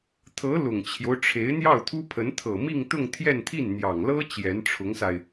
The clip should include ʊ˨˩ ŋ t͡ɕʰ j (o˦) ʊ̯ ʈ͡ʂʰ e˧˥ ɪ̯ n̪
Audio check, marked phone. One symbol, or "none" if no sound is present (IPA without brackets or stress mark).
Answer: o˦